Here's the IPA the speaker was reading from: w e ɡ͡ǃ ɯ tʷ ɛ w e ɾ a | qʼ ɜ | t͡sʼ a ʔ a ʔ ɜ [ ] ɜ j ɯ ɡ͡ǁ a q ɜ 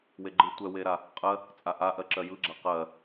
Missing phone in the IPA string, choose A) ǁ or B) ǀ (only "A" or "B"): A